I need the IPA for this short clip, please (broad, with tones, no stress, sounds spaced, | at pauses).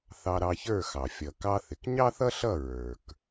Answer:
θ ɑ˧ ɾ ɑ˧ ç ə˞˥˩ x ɑ˩ fʲ ʌ˩ k ɑ˧ θ ɪ˩ k ɲ ɑ˥ θ ʌ˥ ɬ ʌ˥˩ ɹ ə˞˩ k